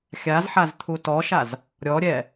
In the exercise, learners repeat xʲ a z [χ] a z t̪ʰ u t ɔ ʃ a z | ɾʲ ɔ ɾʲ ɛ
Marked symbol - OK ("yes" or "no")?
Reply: no